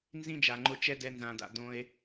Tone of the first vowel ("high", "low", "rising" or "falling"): high